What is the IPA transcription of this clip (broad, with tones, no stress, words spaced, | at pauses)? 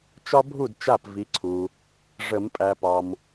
t͡ʃɒ˦bʱu˥˩d t͡ʃa˥˩pvi˨˦ǀʰu˨ | ʐə˨˩˦mpʼæ˨pɒ˨m